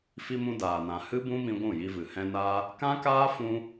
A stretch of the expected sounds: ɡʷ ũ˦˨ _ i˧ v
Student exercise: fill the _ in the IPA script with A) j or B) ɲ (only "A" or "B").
A